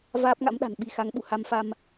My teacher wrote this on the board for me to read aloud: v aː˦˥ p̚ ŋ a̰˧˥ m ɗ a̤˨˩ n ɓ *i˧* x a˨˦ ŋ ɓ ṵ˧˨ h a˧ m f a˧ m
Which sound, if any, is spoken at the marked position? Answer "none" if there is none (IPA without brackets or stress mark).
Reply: i˧